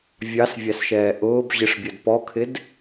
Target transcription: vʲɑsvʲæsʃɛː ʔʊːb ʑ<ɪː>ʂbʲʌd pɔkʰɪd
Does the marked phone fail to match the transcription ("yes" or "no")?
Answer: yes